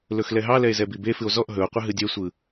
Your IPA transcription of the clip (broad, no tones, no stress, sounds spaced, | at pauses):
l ɵ x l ɛ ɦ ɑ l ɛ e̯ z ɛ b i b e f ɨ o̯ z ɔ ʔ ɦ ɵ o̯ qʷ ə ɦ ɨ dʲ ɛ sʷ ɯ